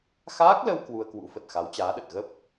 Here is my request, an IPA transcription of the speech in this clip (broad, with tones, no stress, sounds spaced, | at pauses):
x aː˦˥ k̚ l ə˧ w k w u˧ ə̯ k w ṵ˧˥ f ə˨˩ t̚ x a˨˦ w t͡ɕ aː˨˦ ɗ ə˨˩ t̚ ɣ ə˦˥ p̚